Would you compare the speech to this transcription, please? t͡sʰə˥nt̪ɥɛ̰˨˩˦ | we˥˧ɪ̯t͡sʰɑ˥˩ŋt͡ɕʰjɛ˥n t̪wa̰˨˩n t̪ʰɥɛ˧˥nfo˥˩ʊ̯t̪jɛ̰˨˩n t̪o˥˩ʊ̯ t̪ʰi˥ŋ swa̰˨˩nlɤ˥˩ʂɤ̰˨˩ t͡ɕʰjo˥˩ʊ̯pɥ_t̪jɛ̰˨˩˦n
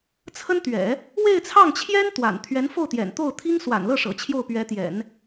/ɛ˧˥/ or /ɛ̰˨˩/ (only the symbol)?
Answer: ɛ˧˥